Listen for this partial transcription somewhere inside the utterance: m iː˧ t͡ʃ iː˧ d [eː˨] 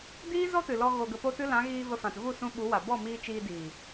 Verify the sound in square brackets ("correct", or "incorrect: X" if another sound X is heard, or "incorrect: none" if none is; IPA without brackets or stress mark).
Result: incorrect: iː˨